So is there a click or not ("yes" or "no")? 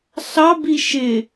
no